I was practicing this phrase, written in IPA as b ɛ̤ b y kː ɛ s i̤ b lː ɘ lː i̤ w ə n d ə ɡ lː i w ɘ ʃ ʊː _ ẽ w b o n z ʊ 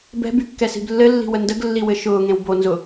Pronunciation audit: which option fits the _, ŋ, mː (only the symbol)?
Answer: ŋ